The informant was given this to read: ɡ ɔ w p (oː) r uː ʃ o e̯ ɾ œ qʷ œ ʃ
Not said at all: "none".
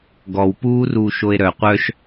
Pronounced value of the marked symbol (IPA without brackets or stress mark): uː